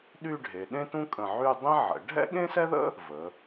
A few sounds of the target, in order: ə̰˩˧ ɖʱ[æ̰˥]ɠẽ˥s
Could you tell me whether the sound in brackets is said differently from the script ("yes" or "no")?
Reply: yes